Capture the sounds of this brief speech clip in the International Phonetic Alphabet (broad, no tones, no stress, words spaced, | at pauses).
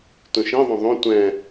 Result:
tũʃĩðˤũ ðˤũ tʷɛ̃